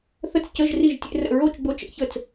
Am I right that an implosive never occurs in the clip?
yes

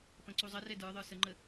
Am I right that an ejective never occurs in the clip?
yes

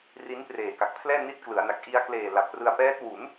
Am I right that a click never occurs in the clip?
yes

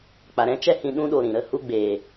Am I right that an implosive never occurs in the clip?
no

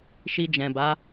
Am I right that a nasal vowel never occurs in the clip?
no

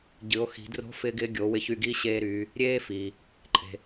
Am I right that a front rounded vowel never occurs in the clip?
no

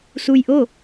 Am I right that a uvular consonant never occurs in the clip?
yes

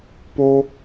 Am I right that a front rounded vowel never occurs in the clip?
yes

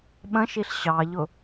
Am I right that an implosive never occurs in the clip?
no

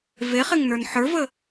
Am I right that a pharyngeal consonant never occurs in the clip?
no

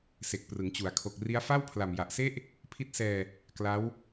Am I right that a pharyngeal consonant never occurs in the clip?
yes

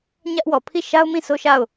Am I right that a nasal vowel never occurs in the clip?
no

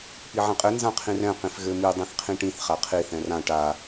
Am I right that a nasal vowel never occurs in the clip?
no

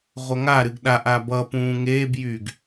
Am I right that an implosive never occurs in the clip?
no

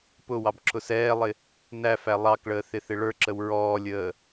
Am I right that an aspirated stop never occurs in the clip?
no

